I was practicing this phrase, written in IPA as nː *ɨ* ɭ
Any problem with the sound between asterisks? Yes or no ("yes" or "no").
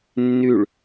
yes